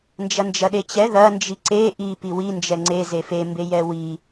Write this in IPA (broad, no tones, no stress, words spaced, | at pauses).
nd͡ʒɐnd͡ʒɐɗet͡ɕɛ ðɐ nd͡ʒiǀe ʔi piwi nd͡ʒɛŋ͡ǀe zefe mbejɛwi